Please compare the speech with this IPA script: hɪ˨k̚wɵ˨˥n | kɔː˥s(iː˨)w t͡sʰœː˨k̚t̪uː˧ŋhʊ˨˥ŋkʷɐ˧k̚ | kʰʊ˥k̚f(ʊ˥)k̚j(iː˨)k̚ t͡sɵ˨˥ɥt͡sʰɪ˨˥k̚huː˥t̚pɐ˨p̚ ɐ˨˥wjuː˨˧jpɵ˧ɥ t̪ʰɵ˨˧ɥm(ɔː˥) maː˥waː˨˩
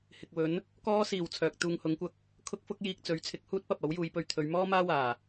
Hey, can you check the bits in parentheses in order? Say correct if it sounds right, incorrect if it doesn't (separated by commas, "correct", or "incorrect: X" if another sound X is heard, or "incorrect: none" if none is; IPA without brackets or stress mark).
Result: correct, correct, incorrect: iː˧, correct